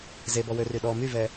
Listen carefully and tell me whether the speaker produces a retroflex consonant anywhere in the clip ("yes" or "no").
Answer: no